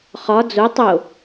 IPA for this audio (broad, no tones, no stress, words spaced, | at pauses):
χɒ d͡zo tˤo